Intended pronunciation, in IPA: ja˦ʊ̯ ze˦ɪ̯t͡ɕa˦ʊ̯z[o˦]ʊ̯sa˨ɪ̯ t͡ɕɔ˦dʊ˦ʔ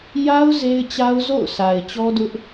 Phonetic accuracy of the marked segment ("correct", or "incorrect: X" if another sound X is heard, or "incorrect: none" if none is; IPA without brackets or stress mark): incorrect: o̰˦˨